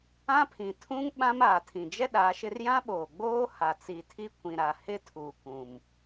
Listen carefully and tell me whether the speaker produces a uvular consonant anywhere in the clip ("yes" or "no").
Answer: no